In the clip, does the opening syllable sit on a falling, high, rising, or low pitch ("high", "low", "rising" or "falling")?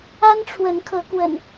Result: high